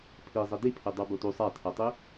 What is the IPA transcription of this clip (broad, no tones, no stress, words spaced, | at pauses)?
pʰizˤe dipʰe dˤə˞botu sˤatʰɜtˤi